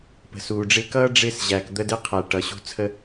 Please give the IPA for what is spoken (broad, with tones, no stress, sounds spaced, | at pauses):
p ə̤˨ s uː˨ ɖ͡ʐ ɪ˧ k ʌː˦ ɖ͡ʐ ɪː˧ s ʑ æː˨ k d̪ ə˧ d ɪ˧ qʰ æ˨ ʈ ʌ˨ ɕ ṳ˧ t͡sʰ ə˧